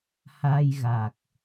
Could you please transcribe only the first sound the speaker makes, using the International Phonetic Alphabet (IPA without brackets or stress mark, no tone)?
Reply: h